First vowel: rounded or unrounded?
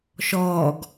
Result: rounded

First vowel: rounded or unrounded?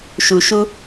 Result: rounded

